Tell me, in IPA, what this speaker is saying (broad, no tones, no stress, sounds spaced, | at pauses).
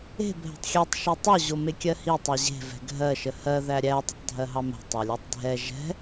e̤ bʱ ɛ̤ tˤ xʲ ɛ tˤ ʃ e tˤ o ʑ o m e kʲ ɜ h i tˤ ɛ ʑ e̤ v ɛ̤ ɡʱ ɜ ʃ ə h ɜ ð æ ɾʲ æ tˤ ə tˤ dʱ ɜ ɦ ɑ m ɛ̤ tˤ ɑ lʲ æ tˤ dʱ ɛ ʒ ɛ̤